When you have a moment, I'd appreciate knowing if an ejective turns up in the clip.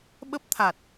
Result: no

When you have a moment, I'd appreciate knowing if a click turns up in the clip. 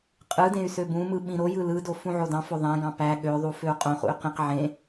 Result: no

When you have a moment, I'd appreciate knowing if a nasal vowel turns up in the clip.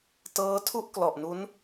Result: no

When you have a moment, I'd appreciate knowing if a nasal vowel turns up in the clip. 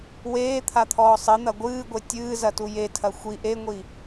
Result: no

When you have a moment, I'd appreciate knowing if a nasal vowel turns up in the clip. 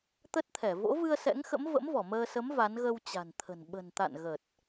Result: no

